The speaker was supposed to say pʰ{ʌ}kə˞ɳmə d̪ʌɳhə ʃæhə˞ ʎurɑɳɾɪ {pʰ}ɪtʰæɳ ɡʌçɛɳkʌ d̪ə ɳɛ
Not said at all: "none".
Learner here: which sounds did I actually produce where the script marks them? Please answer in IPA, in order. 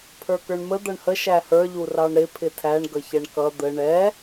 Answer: ə˞, pʰ

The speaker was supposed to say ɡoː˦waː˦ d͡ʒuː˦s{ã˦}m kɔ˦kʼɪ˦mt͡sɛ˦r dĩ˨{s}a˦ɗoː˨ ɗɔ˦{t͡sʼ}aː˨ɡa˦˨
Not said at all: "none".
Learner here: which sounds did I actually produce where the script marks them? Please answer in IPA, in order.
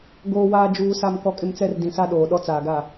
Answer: a˦, s, t͡s

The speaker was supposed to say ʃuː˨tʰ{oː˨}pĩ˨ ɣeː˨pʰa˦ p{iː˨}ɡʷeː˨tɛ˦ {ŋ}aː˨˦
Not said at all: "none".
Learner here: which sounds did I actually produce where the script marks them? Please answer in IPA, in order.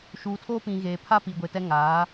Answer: oː˦, iː˨, ŋ

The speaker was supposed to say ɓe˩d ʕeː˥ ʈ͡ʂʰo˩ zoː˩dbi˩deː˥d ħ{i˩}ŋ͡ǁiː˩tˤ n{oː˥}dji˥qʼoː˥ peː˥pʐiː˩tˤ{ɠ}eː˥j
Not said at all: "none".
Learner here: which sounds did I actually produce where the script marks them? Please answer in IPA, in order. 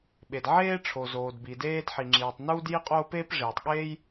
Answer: i˩, uː˥, ɠ

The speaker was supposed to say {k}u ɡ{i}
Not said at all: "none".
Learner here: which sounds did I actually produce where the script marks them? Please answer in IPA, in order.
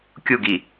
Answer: kʲ, i

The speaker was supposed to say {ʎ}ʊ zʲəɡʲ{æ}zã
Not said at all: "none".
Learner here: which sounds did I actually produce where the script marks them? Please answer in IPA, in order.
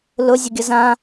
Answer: l, ə

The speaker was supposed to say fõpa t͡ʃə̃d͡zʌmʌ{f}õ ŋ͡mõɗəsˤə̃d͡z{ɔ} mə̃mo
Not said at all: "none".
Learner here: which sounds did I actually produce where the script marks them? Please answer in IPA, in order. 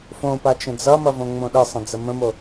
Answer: v, ə

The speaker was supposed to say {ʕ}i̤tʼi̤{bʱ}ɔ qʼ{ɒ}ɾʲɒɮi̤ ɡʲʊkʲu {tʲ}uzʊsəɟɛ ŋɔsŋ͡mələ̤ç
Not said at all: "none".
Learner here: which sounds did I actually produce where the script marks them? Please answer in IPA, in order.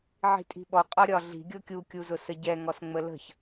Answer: ʕ, ɓ, ɒ, kʲ

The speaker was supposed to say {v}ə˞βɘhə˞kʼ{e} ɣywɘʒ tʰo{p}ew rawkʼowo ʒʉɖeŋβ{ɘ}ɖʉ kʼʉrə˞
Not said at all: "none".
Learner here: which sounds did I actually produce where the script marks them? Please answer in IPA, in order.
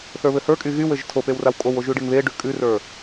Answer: θ, y, p, e

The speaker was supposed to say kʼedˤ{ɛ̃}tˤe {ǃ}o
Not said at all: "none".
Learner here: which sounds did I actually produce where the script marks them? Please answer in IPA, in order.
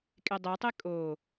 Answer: ɛ, kʼ

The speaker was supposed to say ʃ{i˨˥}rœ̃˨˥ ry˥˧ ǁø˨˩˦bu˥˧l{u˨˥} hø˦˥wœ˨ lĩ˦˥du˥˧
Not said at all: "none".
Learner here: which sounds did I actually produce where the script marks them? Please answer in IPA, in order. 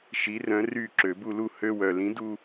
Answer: i˨˥, u˥˧

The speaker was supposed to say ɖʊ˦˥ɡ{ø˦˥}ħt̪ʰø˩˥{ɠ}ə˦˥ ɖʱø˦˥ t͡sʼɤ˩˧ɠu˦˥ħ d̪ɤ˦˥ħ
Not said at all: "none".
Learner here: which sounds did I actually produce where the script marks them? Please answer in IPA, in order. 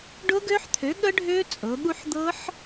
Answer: ø˦˥, ɠ

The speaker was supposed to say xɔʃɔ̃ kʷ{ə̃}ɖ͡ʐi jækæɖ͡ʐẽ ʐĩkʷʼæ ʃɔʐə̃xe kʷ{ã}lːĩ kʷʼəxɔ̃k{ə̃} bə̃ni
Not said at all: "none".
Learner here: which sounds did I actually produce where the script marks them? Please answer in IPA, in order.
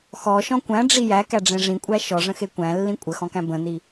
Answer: æ̃, æ̃, æ̃

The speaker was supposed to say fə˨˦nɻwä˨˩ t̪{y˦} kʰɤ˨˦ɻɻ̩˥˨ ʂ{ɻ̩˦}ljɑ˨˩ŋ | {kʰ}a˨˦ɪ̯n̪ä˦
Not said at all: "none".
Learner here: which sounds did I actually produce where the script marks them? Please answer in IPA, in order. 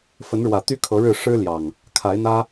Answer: y˨˦, ɻ̩˦, kʰ

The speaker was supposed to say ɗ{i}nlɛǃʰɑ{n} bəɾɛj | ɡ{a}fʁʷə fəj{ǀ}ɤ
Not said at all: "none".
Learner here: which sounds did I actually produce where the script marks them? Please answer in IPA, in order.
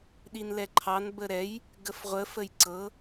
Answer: i, n, ə, ǀ

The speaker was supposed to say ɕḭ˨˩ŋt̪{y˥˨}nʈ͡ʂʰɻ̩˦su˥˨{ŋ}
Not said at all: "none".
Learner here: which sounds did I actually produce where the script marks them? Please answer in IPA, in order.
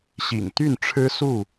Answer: y˥˨, none

